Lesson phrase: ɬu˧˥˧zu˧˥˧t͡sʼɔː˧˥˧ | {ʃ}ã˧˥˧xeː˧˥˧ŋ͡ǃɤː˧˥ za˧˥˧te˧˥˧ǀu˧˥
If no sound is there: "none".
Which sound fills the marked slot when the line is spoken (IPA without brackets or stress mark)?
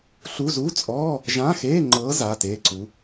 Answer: ʒ